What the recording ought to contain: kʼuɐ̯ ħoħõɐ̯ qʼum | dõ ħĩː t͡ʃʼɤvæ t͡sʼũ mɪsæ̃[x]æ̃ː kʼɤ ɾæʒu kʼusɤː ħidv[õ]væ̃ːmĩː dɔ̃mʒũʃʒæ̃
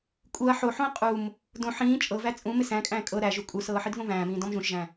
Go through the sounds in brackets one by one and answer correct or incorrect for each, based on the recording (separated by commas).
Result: incorrect, correct